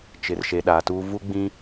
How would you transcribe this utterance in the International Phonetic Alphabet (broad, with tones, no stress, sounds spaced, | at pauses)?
t͡ʃ ɪ˨ r ʃ e˨ ɗ aː˨ t uː˦ v u˦ ɡ͡b ĩ˦